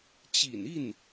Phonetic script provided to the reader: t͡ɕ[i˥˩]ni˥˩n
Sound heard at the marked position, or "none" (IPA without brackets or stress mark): ḭ˨˩